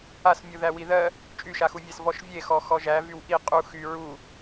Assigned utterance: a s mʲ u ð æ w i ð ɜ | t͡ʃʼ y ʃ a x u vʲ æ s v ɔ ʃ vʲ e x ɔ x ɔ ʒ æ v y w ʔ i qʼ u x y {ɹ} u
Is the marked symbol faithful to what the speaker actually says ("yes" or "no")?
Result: yes